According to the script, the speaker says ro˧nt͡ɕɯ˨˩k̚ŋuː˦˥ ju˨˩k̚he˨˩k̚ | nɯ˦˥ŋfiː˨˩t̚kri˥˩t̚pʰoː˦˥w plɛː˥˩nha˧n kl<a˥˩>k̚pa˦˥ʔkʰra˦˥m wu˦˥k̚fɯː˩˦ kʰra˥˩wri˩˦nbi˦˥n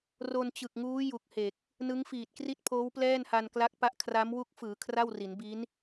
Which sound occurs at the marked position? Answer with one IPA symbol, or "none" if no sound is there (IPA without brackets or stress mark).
a˦˥